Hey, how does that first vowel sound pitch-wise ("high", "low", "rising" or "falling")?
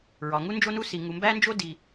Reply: low